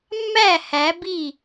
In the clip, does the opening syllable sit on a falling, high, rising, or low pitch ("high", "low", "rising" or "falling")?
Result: falling